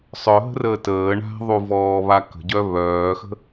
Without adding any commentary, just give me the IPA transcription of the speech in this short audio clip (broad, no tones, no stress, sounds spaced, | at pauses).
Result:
sˤ œ ɦ ə̤ r əː t əː ɳ a̤ ðˤ u v ɔː β a k ə̤ ɟ œ β œː x ə̤